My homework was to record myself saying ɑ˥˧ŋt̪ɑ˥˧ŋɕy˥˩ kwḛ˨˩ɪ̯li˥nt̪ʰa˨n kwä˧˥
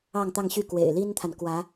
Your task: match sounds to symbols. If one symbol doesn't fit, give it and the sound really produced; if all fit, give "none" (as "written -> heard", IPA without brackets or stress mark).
none